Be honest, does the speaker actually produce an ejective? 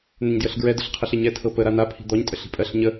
yes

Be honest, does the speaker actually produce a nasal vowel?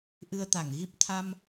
no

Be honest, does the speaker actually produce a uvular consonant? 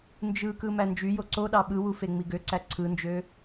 no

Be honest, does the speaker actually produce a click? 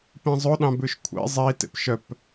no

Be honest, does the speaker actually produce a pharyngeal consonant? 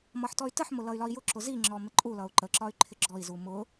yes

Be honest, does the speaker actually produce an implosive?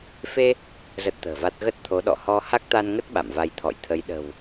yes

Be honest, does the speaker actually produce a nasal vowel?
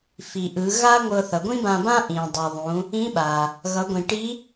yes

